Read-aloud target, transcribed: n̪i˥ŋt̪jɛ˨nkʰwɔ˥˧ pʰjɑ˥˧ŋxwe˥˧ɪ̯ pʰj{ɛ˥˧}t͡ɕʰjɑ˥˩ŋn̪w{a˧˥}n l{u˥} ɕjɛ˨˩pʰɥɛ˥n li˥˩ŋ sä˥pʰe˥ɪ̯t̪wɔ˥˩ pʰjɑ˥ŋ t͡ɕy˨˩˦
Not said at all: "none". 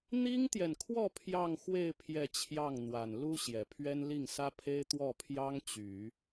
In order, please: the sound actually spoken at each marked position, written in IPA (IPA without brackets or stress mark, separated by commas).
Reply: ɛ˥˧, a˨˩, u˥